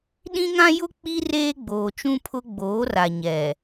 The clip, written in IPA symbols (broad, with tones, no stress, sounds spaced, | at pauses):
ɗ ĩ˦ ŋ ã˦ j ʊ˦ k͡p i˦ r eː˦ ɡ͡b oː˨ t͡ʃ ũ˦ pʰ ʊ˦ ɡ͡b oː˨˦ r a˨ ɲ ɛ˨